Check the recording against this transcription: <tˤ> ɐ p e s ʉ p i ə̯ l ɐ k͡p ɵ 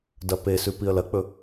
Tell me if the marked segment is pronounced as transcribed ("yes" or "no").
no